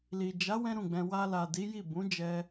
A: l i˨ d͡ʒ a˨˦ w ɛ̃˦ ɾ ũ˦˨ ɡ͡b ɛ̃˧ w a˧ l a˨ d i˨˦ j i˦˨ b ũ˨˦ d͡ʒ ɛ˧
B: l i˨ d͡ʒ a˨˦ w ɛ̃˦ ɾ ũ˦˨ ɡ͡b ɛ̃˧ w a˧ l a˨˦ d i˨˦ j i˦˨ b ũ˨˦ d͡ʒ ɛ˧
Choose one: A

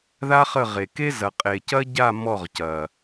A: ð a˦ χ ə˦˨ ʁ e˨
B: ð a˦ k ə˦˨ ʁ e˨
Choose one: A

